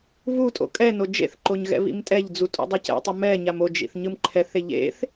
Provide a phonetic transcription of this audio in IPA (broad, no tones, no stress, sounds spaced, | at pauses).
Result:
β u tʼ o̰ kʼ ɛ n o d͡ʒ ḛ θ ǃ o ɲ ɣ ɛ̰ β ḭ m tʼ ɛ ʎ d͡z u tʼ o̰ dˤ ɛ c ɛ̰ tˤ ʌ m ɛ ɲ a m o d͡ʒ ḭ θ ɲ ɯ m ǃʰ ɛ θ e ʎ ḛ θ